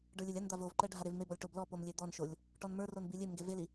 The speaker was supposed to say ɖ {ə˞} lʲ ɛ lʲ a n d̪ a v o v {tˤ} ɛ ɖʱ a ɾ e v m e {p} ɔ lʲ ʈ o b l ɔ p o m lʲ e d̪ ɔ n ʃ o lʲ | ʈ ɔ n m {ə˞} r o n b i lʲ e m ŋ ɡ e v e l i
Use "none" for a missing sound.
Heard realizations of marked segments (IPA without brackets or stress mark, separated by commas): ə˞, ǃ, b, ə˞